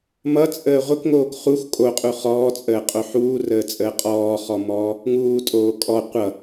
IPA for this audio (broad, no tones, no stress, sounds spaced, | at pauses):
m ʌ t͡sʼ əː ʁʷ ə k ŋ oː k χ u x kʼ o qʼ u χ ɔː t͡sʼ əː qʼ o ħ uː r əː t͡sʼ əː qʼ ɔː χ ɔ m ɔː | ŋ uː tʼ oː kʼ ɔ qʷ ʌ